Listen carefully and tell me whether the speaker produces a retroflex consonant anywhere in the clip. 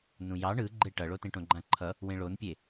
yes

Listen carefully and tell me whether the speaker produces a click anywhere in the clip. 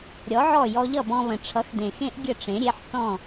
no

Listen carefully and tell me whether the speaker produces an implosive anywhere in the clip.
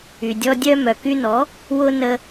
no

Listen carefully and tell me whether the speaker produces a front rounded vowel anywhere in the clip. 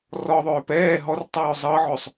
yes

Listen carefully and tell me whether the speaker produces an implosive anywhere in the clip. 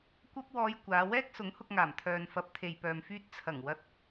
no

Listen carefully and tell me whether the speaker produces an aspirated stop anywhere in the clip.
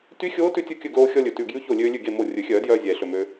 no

